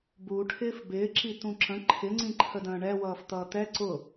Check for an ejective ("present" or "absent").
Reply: absent